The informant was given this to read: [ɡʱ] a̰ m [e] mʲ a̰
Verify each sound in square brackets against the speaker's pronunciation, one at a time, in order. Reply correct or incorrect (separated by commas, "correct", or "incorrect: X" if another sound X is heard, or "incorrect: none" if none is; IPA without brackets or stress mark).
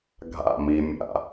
correct, incorrect: i